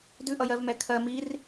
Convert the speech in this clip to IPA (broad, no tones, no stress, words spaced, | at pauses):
dʉʔʌjɜvmɛ kʰɜ mir